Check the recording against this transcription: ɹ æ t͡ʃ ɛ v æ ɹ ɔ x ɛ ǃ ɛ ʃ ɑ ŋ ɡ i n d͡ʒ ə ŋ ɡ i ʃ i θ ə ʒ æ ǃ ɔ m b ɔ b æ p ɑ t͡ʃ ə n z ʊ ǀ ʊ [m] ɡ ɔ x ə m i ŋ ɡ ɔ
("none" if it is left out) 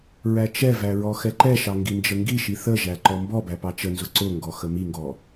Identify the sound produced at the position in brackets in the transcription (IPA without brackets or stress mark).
ŋ